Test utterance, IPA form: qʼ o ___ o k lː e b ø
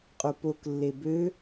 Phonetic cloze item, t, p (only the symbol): p